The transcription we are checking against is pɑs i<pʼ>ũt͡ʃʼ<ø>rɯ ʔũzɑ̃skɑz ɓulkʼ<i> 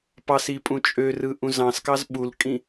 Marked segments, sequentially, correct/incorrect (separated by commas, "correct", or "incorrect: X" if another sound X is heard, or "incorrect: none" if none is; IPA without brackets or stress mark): correct, correct, incorrect: ĩ